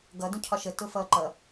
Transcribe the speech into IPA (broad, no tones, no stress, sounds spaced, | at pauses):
ɡ ʌ d ũ cʰ ɒ ʃ ə t ʊ f ʌː ǃ ʌ